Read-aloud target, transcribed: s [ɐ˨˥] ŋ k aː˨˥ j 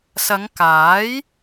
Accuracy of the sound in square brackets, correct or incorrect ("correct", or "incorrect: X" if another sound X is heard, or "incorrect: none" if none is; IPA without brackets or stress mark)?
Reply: incorrect: ɐ˨˧